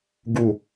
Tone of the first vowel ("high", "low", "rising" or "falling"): low